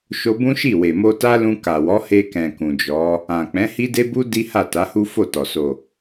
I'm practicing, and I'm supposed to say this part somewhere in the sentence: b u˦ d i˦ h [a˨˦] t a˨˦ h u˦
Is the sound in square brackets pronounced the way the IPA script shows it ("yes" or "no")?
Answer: no